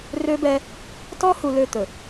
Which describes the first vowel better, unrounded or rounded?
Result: rounded